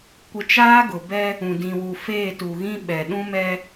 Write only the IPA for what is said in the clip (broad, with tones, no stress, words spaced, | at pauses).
kʷɪ˦ t͡ʃaː˦ɡʊ˨bɛ˦ | ũ˨dĩ˨wu˨ feː˦˨tu˨ɣĩ˦ ɓɛ˨ɗũ˦mɛ˦